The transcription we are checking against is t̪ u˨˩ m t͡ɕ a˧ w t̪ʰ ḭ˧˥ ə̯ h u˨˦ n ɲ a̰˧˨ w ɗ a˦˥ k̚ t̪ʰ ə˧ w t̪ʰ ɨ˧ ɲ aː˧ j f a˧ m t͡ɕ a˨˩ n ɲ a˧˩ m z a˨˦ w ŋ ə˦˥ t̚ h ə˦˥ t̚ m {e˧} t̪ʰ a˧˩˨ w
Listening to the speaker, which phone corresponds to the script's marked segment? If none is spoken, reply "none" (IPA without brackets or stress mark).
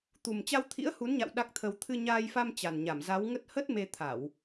e˧